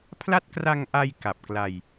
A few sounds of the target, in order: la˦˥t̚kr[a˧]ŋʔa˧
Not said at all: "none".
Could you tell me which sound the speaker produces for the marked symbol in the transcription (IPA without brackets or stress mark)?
a˧